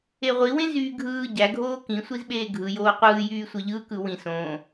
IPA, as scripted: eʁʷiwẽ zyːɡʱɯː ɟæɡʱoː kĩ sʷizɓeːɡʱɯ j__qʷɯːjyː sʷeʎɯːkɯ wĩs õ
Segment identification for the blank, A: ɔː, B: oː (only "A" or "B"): B